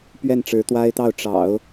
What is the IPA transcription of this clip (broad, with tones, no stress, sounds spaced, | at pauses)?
p ɥ ɛ˥˩ n ʈ͡ʂ ɻ̩˧˥ t̪ w a˥ ɪ̯ t̪ ɑ˥˩ ʊ̯ ʈ͡ʂ ɑ̰˨˩˦ ʊ̯